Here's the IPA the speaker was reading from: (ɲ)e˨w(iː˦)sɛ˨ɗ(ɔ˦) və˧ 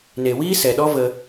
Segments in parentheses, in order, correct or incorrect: incorrect, correct, correct

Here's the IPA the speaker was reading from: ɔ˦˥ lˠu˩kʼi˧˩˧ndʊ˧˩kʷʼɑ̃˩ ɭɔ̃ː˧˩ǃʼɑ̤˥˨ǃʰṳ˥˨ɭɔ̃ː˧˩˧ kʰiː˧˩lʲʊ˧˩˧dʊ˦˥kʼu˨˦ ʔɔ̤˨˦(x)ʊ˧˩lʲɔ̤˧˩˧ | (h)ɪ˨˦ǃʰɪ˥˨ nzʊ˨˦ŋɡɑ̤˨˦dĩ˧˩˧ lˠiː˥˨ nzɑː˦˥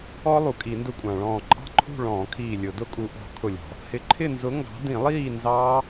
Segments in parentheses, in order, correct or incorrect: incorrect, correct

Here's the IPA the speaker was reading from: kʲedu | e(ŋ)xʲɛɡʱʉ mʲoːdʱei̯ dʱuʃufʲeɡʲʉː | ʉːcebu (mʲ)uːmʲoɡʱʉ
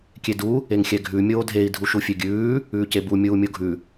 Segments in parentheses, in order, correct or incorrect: correct, correct

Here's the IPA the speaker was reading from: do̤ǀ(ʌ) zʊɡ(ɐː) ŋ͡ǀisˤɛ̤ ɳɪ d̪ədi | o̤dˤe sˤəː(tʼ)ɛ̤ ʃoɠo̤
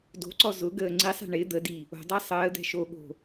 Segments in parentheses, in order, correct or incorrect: incorrect, incorrect, incorrect

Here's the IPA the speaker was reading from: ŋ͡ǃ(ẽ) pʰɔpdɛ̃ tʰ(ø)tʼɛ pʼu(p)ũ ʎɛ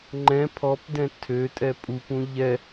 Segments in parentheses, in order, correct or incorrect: incorrect, correct, correct

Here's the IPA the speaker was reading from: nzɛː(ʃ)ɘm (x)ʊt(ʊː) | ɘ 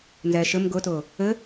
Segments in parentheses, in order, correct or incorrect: correct, incorrect, correct

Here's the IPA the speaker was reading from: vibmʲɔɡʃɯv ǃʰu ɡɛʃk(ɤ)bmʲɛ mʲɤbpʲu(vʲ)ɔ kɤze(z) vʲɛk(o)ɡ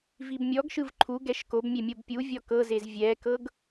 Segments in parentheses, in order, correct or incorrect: incorrect, correct, correct, incorrect

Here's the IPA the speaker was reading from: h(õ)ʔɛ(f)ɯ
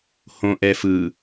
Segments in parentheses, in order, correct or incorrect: correct, correct

